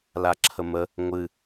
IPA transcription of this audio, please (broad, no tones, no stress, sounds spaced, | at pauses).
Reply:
l a ǁʰ ə m ə | ŋʷ ɨ